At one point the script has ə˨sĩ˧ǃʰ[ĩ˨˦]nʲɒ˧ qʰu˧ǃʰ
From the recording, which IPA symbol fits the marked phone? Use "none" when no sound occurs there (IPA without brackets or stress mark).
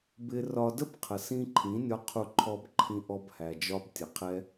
ĩ˨˦